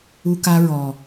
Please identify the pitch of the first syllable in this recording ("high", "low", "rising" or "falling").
high